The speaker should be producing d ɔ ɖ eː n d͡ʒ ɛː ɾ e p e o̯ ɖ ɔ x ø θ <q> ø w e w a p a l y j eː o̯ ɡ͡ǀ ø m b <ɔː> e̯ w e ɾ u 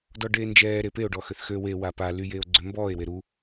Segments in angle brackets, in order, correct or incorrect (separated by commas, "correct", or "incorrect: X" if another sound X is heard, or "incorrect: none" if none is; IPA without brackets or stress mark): incorrect: x, correct